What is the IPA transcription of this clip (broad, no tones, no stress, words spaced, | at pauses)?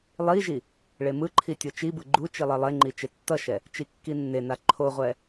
lˠiʒi | ɭemɯǃʰi tʲot͡ʃibɯ ɡ͡ǃu t͡ʃilˠelˠeŋ͡ǃi t͡ʃetːʌʃɛ | t͡ʃikːinːena ǃʰoʁʷɛ